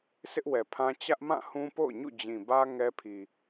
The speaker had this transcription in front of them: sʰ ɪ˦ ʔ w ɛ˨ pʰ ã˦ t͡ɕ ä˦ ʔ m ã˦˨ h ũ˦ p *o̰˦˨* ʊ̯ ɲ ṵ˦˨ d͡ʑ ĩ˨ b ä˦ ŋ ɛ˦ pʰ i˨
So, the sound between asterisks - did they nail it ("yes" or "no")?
yes